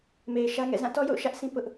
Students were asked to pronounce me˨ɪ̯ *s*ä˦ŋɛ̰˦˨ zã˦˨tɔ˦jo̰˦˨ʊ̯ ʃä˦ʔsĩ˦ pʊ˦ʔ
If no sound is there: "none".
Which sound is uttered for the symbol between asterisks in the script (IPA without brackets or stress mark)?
ʃ